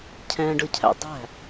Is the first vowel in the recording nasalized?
yes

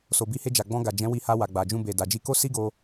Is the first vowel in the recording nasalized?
no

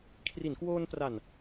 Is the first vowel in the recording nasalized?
no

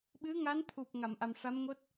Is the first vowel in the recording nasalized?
no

